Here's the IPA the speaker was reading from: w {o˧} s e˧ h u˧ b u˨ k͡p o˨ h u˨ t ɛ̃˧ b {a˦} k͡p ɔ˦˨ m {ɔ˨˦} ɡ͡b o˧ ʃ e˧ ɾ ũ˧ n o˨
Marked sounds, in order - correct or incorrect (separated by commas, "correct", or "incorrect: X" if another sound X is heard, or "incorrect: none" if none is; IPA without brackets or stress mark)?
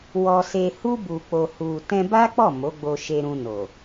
incorrect: ɔ˧, correct, incorrect: o˨˦